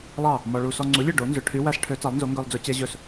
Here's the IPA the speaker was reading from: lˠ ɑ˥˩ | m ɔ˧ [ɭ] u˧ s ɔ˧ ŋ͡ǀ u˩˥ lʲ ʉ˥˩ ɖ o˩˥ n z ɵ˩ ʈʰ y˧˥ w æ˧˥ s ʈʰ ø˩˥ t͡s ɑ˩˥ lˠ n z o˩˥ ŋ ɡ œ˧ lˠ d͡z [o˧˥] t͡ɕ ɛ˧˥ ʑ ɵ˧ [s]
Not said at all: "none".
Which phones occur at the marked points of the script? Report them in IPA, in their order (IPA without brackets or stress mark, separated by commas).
ɭ, ɵ˧˥, s